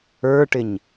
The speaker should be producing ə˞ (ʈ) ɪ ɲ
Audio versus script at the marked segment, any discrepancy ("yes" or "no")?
no